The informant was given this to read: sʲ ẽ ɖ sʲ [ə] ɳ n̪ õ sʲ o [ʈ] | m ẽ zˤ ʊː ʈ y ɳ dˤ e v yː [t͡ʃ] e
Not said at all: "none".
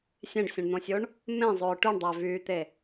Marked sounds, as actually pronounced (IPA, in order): ə̃, ɳ, t̪

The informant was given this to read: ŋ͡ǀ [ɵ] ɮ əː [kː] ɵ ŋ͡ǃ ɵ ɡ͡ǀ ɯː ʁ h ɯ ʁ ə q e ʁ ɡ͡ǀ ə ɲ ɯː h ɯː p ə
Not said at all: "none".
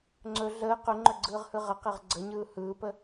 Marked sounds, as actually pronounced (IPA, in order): ɵ, q

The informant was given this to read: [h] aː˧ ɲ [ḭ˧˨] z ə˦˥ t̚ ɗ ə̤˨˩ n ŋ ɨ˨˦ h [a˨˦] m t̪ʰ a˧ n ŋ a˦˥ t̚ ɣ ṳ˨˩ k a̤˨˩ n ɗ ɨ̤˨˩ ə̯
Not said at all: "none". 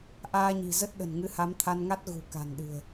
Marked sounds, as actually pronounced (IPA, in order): ʔ, i̤˨˩, a˨˦

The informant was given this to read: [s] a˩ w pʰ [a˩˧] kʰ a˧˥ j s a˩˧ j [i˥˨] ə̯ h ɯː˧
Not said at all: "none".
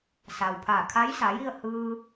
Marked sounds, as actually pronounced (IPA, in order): s, a˧˩, i˥˨

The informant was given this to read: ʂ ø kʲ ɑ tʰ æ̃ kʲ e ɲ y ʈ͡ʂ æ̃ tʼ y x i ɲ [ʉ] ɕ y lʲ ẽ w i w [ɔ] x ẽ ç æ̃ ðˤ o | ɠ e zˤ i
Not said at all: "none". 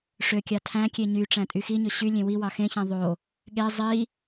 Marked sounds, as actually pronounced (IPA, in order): ø, ɑ

